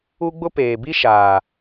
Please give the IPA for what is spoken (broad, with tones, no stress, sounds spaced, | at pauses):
u˦ ɡ͡b ʊ˦ p eː˨ b i˦ ʃ aː˨